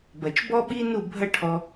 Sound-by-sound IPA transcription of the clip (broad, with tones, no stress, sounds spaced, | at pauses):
b ɐ˨ t͡ʃ b ɔ˦ ɓ i˦ n u˦˨ bʱ ɐ˦ ʈʰ ɔ˧